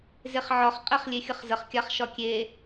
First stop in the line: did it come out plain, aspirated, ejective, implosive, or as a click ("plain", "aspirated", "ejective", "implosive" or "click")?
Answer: ejective